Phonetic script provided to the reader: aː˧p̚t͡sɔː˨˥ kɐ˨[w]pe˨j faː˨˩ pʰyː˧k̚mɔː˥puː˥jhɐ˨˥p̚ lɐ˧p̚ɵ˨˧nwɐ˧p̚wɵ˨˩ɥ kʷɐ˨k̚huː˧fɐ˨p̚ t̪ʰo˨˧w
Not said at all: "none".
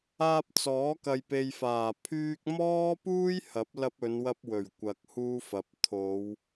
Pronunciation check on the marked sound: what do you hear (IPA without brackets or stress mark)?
j